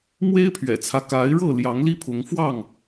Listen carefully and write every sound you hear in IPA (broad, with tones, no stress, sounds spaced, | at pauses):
m w e˦ ɪ̯ pʰ ɥ ɛ̰˨˩ t͡sʰ ä˦ k a˨˦ ɪ̯ ɻ ɤ˥˨ l j ɑ˨˦ ŋ l i˦ pʰ ʊ˨˦ ŋ f w ɑ˥˨ ŋ